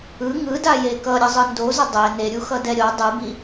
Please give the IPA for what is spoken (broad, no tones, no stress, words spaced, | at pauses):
ɯ ŋɯdaje kʌɾʲʌzˤɯ ndozʌ dˤɛ neɾʲuxʌdɛ ɾʲo dˤɯbi